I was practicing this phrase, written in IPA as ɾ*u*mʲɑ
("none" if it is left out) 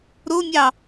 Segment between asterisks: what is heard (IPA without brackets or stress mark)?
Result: o